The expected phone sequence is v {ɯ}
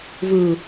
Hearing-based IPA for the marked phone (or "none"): ɯ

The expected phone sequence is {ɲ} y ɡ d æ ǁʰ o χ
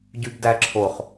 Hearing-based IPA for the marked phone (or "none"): ɟ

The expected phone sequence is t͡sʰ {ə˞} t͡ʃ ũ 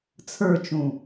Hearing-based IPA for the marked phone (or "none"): ə˞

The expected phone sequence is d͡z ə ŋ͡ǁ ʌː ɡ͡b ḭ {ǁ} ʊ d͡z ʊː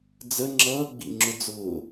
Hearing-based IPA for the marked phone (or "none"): ŋ͡ǁ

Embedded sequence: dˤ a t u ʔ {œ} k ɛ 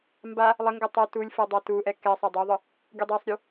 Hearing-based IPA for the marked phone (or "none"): ɛ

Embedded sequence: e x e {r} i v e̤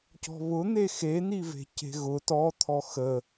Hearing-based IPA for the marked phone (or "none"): n̪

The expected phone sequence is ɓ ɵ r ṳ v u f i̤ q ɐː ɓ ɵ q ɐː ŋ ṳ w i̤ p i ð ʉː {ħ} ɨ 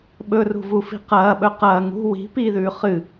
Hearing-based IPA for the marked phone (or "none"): χ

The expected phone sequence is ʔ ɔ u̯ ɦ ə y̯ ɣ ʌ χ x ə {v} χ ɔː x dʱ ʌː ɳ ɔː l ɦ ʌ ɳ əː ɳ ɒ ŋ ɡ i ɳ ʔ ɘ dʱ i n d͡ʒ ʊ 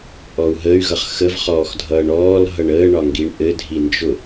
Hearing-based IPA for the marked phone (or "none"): v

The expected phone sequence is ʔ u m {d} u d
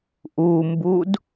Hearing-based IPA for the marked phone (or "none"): b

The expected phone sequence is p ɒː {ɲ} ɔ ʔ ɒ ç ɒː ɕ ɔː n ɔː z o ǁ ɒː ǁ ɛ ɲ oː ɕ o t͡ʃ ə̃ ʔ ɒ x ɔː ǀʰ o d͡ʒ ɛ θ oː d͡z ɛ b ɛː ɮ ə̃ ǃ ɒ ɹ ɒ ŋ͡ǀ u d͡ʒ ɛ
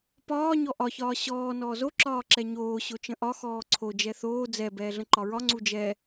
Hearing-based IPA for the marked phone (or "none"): ɲ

